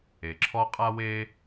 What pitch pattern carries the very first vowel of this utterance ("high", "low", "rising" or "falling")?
low